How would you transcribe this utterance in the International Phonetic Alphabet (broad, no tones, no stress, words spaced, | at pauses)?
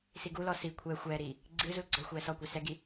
siɡulɔ si kʷʰɛ xʷɛːɾiː | ɡ͡ǀɨːzul ɡ͡ǀɔlxʷɛːsɔkʷɛ sɛɡi